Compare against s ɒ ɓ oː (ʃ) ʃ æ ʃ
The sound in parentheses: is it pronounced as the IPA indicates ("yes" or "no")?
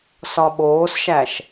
no